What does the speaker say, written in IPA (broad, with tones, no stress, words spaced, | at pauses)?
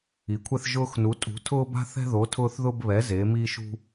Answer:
i˨˦kʷʰɛ˦θ ʒʊː˦x nu˨˦tʼṳ˨˦ tʰʊː˦ba̤˦θɛ̤˦ðo˨˦ tʰʊː˦θðʊː˦b βɛ˨˦ ze˨˦miː˦ʃ ṳ˦